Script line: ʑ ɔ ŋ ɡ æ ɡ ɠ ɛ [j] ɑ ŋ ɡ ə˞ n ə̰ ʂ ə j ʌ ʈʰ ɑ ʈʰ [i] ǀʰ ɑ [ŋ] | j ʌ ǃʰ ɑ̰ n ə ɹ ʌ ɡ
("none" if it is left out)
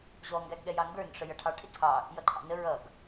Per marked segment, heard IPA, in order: j, ɪ, none

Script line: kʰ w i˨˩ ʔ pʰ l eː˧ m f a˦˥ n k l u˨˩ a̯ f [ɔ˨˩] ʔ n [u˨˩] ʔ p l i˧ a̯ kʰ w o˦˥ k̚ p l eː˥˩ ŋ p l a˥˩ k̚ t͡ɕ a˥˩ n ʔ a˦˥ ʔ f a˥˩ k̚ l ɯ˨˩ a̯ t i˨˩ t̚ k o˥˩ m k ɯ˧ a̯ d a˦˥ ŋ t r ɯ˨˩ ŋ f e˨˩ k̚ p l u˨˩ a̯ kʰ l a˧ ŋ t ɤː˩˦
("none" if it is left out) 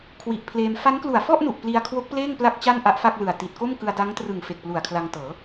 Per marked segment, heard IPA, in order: ɔ˥˩, u˨˩

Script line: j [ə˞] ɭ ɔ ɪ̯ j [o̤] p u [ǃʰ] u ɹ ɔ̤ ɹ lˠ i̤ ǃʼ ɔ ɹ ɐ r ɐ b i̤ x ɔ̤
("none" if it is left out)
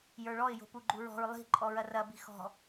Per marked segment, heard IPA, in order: ə˞, o̤, ɡ͡ǃ

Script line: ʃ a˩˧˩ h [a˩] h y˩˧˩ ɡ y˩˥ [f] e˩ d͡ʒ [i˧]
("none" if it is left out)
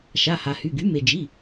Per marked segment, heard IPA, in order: a˩, m, i˩˧˩

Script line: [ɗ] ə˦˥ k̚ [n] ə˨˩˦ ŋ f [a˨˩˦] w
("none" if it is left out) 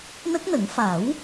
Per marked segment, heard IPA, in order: n, n, a˨˩˦

